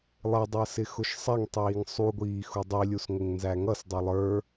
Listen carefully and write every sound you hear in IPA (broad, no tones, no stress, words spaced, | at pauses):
lˠɪdˤəːsɪ xʊʃsˤɛŋ tˤiːŋsˤuɡʷiː xudˤilʲus ŋʷɪŋnzæŋʌs dˤilˠə˞